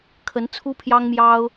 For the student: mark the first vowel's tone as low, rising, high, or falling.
rising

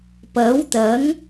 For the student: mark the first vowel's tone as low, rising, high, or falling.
rising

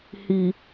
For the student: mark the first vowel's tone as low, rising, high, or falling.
low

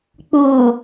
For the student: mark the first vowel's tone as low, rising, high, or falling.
low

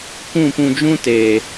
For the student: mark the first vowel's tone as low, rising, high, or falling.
falling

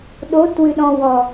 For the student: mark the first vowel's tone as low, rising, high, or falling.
rising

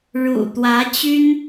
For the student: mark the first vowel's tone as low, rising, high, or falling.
low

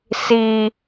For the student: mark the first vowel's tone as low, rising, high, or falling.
high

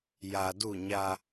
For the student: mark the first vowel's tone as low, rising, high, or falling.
low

